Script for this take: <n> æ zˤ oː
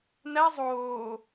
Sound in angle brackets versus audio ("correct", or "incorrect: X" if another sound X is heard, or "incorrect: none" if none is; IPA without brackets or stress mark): correct